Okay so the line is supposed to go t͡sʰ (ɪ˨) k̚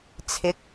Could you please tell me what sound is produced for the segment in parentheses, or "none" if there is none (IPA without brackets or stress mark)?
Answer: ɪ˨˥